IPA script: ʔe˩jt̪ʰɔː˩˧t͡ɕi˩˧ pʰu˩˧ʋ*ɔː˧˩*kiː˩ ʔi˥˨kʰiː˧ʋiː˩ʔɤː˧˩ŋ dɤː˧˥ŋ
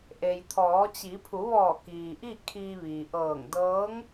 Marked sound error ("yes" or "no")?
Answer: no